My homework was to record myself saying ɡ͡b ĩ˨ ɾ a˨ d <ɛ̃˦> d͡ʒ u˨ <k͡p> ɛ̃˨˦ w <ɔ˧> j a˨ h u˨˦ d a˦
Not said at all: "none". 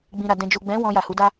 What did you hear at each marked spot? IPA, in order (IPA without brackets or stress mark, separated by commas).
ɛ̃˨, ɡ͡b, ɔ̃˧